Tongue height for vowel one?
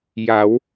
low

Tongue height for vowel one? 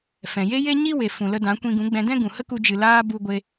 mid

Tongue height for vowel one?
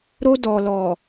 mid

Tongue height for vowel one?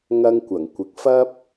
low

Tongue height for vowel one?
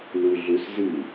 high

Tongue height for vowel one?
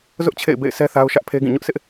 high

